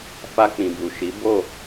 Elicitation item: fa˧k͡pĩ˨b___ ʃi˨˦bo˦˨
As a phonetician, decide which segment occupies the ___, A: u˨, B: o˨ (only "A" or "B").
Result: A